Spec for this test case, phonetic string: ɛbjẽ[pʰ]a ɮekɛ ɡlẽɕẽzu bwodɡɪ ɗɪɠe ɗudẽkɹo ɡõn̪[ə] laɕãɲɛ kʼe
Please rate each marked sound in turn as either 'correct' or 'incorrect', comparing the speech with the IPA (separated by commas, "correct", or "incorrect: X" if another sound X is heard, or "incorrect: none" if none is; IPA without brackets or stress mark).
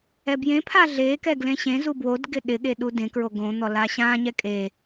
correct, incorrect: ɔ